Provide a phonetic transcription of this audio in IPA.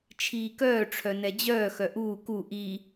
t͡ʃʰ iː k œː ʈ͡ʂʰ œ n ɛ d͡ʑ œː x œ ʔ uː k u ʔ i

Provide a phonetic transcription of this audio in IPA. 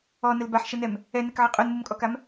ɔ n ə l b a ħ ʃ ə n ɛ m | ɛ n ɛ k ʕ ɛ qʼ u n m u m kʼ ɔ k a m

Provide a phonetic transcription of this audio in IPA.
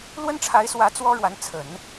l w ə˥ n ʈ͡ʂʰ a˧˥ ɪ̯ s w ä˧˥ t͡s w ɔ˥ ɻ w a˧˥ n t͡sʰ ə˨˩˦ n

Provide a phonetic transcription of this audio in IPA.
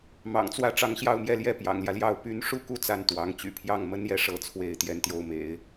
m ɑ̰˨˩ ŋ t͡s w ä˥˩ ʈ͡ʂ ɑ˧˥ ŋ ɕ j ɑ˥˧ ʊ̯ m j ɛ˥˧ l j ɛ˥˩ p j ɑ̰˨˩ ŋ l j ä˦ l j ɑ˥˩ ʊ̯ p y˧˥ n ʂ u˥ k u˥ t͡s a˥˩ n t̪ w ɑ˧˥ ŋ t͡ɕ y̰˨˩ pʰ j ɑ˥˩ ŋ m ə˥ n j ɛ˥˧ ʂ ɤ˥˧ t͡sʰ w e˥˧ ɪ̯ t̪ j ɛ˥˧ n t̪ j o˥˩ ʊ̯ m ḛ˨˩˦ ɪ̯

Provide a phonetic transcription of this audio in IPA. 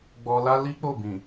ɡ͡b ɔ˧ l a˦ l i˦ k͡p o˦˨ b ĩ˨

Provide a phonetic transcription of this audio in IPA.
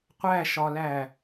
qʷ æ ʃ ɒ l æ

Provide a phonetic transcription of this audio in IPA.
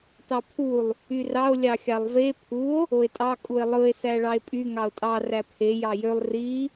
t ɑ pʰ u lˠ | y r ɑ o̯ lʲ ɑ xʲ ɑ lˠ v e pʰ u o̯ | o e̯ tʼ ɑ kʼ u e̯ lˠ ɯ e̯ s æ ɭ ɑ e̯ pʼ y ŋ ɑ o̯ tʼ ɑ r æ pʰ e j ɑ j ø lˠ r i

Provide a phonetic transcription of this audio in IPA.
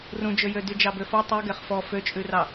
r ũ d͡ʒ ø j ø d y d͡ʒ ɑ b ø f ɔ tˤ ʉ ɡ ɛ χ f ɔ f ø t͡ʃʼ ʉ r ɑ

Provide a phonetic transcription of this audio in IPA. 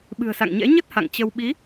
ɓ ɨ̤˨˩ ə̯ s a̰˧˨ ŋ ɲ ɛ̰˧˥ ɲ ə˦˥ t̚ h a̰˧˨ ŋ t͡ɕ ə˧ w ɓ i˨˦

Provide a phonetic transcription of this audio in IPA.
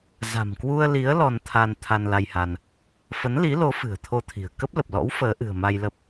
z a̤˨˩ m k w u˧ ə̯ l i˨˦ ə̯ l ɔ˧ n t̪ʰ a˧ n t̪ʰ a˧ n l a˧ j h a˧ n | f ə˨˦ n l i˨˦ l o˨˦ f ɨ̤˨˩ ə̯ t̪ʰ o˧ t̪ʰ i̤˨˩ ə̯ k ə˦˥ p̚ l ə˨˩ p̚ l ɔ̰˧˥ w f əː˨˦ ʔ ɨ̤˨˩ ə̯ m a˧ j l ə˦˥ p̚

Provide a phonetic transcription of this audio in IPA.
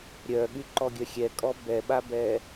ɾʲ œ ɠ y ǃ ɔ ɡʲ œ xʲ ɛ kʼ ɔ b ɛ ɓ a b ɛ

